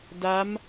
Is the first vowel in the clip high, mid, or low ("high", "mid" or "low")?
low